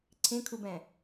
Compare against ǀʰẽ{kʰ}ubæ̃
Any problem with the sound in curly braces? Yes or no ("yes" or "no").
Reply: no